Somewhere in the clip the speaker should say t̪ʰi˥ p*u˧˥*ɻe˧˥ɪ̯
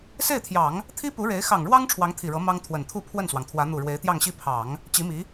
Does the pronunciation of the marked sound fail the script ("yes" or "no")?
no